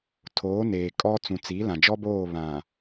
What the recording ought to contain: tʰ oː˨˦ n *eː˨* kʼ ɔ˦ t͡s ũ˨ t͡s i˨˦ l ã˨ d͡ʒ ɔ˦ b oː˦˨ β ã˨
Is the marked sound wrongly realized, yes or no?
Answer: no